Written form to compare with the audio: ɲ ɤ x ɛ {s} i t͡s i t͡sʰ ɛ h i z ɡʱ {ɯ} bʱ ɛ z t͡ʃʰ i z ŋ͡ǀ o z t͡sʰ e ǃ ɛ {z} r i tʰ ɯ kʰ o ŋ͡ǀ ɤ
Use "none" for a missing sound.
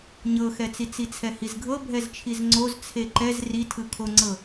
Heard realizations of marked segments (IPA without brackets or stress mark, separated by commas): t͡s, ɤ, z